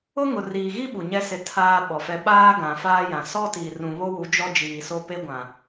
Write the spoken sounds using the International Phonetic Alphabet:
ʊ˦ ŋ ʊ˨ r iː˨ ɣ i˦ ɓ u˨ ɲ ɛ˦ s ɪ˦ tʰ aː˦ ɓ ɔ˨ f ɛ˦ ɓ aː˦ ɡ ã˨ f aː˦ j ã˨ s ɔ˦ t i˨ r ũ˨ β o˦ w u˨˦ d͡ʒ ɔ˦ d͡ʒ iː˨ s o˦ p e˦ ɡʷ ã˨

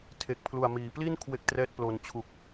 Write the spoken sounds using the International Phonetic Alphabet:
tʰ e˨˩ k̚ pʰ l u˨˩ a̯ m iː˩˦ p l i˥˩ n kʰ w e˥˩ k̚ t r ɛː˥˩ t̚ p l o˧ n t͡ɕʰ u˨˩ k̚

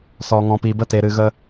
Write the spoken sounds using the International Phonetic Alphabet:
s ɔ˨ ŋ ɔ̃˨ p i˨ b ə˦ t e˨ ɾ ɨ˨ ɣ ə˧

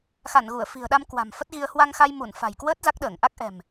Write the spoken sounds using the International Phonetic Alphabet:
x a˧˩ n ɣ u˧˩ ə̯ f i̤˨˩ ə̯ ɗ a˧ m k w a̤˨˩ m f ə˦˥ t̚ ɣ i˧ ə̯ h w a˧ ŋ x a˧ j m u˧˩ n f a̤˨˩ j k w əː˦˥ t̚ z a˦˥ k̚ ɗ əː˧˩ ŋ ʔ a˦˥ k̚ ʔ ɛ̤˨˩ m

